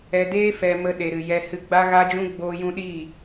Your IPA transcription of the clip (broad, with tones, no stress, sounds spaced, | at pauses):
ɛ˧ d eː˦ f ɛ˧ m ə˧ ɗ e˨ ɾ ɨ˨ j ɛ˧ h ɨ˧ ɡ͡b a˦ ɣ a˦ d͡ʒ ũ˦ ɡ͡b oː˧ j ũ˧ ɗ iː˦˨